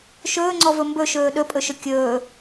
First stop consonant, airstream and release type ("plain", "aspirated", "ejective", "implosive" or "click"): click